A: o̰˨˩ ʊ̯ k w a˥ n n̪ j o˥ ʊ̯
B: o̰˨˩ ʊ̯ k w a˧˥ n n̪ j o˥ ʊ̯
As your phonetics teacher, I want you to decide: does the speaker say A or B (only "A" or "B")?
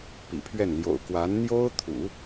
B